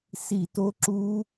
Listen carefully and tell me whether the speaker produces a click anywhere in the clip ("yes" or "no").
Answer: yes